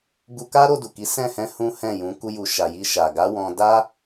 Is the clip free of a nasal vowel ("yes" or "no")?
no